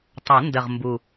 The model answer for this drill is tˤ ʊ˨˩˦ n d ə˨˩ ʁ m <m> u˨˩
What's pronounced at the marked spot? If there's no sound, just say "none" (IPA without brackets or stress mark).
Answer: b